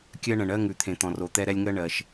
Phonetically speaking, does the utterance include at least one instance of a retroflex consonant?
yes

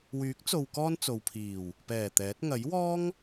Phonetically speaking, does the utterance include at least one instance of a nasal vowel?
no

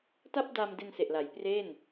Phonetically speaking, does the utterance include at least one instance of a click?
no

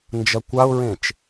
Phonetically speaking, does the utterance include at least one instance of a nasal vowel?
yes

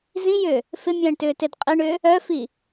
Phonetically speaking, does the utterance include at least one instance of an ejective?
yes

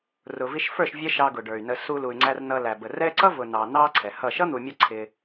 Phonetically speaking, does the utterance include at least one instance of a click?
yes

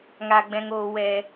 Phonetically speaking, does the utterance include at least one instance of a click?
no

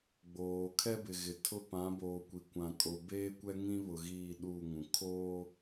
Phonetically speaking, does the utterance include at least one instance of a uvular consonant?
no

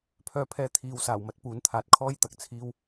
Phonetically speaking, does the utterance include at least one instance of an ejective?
no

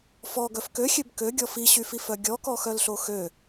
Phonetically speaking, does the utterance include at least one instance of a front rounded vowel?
yes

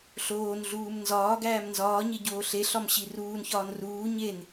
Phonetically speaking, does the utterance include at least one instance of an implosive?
no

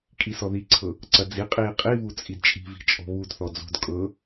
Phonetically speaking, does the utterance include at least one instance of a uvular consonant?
yes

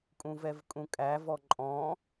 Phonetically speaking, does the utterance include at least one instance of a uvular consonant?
no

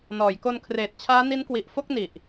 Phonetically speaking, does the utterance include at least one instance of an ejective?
no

